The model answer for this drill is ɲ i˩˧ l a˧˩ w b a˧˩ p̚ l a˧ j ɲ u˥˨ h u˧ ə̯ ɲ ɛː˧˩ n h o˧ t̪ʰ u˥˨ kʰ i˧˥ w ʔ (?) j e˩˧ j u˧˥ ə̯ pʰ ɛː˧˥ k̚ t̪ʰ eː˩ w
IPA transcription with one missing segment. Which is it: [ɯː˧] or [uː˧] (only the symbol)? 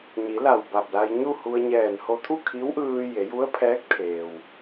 ɯː˧